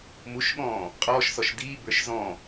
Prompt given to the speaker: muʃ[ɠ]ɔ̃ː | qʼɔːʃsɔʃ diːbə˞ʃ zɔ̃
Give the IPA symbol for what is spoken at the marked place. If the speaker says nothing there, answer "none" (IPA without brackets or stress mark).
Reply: ɠ